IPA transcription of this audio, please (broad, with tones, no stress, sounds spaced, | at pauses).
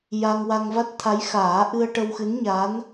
j a˧ ŋ w a˧ ŋ v a˦˥ t̚ t̪ʰ a˧˥ j x aː˨˩˦ ʔ ɨ˧ ə̯ ʈ ə˧ w x ɨ˧˥ n ɲ a˧˥ n